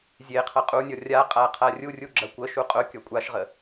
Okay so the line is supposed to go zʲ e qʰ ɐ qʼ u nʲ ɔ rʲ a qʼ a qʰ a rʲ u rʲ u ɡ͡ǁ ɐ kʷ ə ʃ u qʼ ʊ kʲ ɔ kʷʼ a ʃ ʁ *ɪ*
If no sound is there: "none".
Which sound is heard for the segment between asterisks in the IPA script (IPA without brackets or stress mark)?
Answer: ə